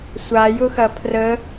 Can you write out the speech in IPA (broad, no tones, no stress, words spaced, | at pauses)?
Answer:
sʷajʊxɐ pʰrə